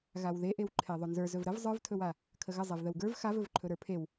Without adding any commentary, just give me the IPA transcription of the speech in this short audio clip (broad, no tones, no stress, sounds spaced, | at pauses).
ɣ a w ð e ʔ e w ǃʰ e ðˤ ɵ n z ə˞ z ɵ v ɾ ə v zˤ ə˞ v tʰ ɵ w a | kʰ ə ɣ ə zˤ e v ð ə w ɡ ə˞ v x a v ɵ v ǃʰ ɵ ɾ ə˞ pʰ e w